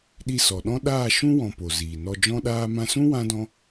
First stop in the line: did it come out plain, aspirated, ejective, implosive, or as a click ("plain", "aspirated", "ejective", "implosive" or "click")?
implosive